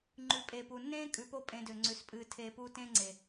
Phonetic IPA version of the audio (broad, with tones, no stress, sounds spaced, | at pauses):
ŋ͡ǃ ʉ˨ pʼ eː˨ p u˨ nː ẽː˦ kʼ ʉ˨ p o˦ pʼ ẽ˧ d ø˨ ŋ͡ǀ ʉ˨ s pʼ ɨː˧ tʰ eː˧ p uː˦ t ẽː˦ ŋ͡ǀ e˨